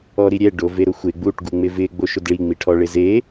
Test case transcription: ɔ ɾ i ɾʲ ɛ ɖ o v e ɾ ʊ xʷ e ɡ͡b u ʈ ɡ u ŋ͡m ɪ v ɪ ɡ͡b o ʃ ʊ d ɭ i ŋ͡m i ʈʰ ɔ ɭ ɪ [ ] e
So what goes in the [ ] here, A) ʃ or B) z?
B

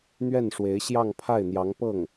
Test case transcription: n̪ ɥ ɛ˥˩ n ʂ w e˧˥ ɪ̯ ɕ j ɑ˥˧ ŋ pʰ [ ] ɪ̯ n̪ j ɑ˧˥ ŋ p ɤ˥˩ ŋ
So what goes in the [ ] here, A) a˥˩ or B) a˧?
A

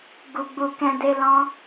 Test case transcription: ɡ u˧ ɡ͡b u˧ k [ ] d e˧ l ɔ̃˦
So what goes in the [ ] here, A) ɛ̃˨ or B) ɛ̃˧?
B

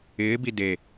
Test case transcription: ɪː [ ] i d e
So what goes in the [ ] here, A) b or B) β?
A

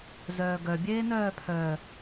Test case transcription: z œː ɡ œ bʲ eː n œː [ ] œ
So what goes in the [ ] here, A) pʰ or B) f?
A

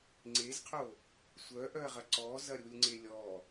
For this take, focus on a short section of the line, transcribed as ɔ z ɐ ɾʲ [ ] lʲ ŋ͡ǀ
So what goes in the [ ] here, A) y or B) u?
B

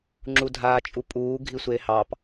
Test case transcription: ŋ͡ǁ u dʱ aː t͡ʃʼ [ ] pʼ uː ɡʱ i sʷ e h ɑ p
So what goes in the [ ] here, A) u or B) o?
A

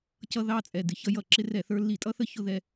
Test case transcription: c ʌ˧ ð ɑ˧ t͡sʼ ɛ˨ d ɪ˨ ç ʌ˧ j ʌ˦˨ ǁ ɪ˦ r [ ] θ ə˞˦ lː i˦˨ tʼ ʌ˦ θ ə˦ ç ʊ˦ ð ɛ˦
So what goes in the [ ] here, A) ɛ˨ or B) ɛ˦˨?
B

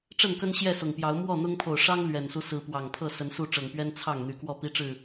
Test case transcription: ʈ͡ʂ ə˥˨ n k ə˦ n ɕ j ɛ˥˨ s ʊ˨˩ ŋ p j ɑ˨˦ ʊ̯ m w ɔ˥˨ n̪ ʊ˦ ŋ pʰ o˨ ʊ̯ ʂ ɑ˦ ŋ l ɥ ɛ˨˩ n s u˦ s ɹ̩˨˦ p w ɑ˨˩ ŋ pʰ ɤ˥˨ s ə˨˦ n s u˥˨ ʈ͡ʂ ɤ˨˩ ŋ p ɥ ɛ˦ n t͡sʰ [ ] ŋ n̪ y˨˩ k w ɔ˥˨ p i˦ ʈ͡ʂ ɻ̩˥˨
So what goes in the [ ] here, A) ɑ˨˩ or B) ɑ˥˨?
B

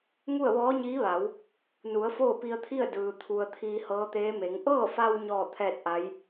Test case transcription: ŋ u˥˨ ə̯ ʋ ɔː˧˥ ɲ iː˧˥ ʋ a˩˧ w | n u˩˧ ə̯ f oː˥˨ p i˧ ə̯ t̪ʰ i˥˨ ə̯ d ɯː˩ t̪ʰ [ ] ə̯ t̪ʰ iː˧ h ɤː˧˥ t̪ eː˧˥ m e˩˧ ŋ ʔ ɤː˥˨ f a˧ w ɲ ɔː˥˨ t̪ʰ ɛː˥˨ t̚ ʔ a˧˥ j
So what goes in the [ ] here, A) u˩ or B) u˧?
A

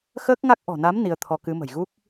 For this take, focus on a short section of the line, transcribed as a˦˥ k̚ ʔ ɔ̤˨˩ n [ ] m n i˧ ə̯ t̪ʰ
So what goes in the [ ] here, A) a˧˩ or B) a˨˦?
B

